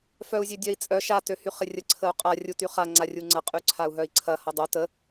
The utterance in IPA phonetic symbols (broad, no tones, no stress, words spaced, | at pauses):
fœu̯zʲødʲœi̯t͡sʼœ ʃa tøhyχɪrʲə ǀʰəu̯qʼa rʲutyχa ŋ͡ǀarʲuŋ͡ǀɐ qʼyǀʰau̯ɦœi̯ǀʰɐ hɐdˤo tə